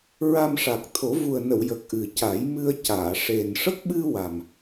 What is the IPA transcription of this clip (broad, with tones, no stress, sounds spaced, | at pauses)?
ɹ a˧ m ʂ a˨˩ k̚ t̪ʰ o˨˩˦ v u˨˩ ə̯ n ə˨˩˨ w j ə˨˩ k̚ ʔ ɨ˨˩ c a˨˩˦ j m ɨ˧ ə̯ c aː˨˩˨ ʂ e˨˩ n ʂ ə˦˥ k̚ ɓ ɨ˧ w a˨˩ m